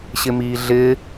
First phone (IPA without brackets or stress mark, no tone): ɕ